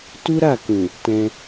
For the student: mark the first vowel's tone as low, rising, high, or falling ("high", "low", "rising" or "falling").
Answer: high